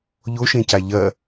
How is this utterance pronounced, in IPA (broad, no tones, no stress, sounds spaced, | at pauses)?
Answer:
ʎ o ʃ ẽ c a ʎ ɐ